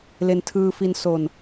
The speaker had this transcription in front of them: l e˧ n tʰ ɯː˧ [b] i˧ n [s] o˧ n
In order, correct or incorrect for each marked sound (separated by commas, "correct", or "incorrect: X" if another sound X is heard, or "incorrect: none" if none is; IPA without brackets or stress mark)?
incorrect: f, correct